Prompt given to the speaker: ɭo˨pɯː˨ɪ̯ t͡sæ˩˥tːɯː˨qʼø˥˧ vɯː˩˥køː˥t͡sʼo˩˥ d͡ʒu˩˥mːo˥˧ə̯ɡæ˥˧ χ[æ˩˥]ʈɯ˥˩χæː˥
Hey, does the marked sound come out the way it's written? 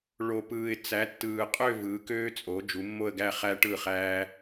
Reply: no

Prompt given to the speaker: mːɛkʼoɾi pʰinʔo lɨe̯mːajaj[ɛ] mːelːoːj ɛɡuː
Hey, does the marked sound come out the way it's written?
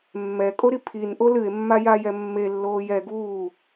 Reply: yes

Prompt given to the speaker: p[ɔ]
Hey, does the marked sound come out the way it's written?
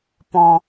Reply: no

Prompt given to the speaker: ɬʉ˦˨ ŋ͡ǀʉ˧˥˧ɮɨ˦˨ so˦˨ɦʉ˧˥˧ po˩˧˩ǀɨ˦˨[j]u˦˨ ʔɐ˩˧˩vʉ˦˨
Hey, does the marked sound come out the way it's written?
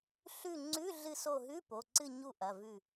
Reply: no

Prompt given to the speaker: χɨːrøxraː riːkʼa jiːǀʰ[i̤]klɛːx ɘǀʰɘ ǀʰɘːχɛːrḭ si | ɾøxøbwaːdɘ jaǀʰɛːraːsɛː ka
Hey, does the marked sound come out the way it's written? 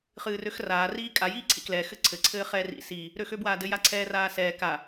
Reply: no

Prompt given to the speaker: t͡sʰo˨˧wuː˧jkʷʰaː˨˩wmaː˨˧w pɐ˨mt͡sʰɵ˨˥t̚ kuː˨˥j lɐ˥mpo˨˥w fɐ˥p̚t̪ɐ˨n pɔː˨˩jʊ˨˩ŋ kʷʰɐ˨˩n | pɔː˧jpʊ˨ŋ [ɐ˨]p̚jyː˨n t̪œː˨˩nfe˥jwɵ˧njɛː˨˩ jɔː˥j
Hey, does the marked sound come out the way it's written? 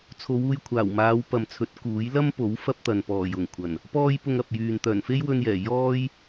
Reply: yes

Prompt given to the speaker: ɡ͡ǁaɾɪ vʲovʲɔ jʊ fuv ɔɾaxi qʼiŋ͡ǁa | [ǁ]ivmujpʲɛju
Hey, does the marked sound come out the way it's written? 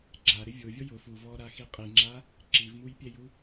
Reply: yes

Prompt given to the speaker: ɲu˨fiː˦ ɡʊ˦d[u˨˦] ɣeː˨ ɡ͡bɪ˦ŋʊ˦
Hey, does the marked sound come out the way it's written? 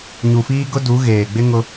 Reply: yes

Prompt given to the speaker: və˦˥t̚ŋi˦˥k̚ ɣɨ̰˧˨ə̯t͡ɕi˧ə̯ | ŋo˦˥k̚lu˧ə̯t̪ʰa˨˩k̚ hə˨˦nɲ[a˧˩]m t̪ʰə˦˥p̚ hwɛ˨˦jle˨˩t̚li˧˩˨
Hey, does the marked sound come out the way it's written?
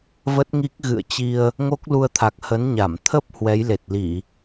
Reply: yes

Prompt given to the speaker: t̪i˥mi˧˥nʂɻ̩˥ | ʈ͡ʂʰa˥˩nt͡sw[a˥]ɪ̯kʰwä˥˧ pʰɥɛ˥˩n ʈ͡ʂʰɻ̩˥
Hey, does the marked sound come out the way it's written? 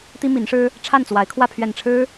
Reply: no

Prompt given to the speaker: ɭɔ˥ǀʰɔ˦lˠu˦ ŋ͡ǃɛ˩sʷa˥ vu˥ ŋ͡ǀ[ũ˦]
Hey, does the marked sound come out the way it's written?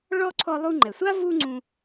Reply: yes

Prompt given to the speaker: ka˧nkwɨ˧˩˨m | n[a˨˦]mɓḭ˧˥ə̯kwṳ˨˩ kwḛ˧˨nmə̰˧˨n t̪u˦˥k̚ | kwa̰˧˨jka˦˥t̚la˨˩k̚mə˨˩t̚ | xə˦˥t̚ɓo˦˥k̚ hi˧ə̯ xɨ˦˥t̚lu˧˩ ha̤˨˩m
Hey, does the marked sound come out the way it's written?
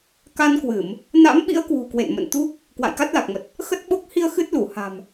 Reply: no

